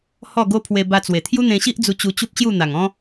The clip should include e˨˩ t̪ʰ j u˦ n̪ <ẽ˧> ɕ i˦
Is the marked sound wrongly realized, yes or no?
no